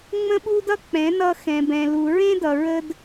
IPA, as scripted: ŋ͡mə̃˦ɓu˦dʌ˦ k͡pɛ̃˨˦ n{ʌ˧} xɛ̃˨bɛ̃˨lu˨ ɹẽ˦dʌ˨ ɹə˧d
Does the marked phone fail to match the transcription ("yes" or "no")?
no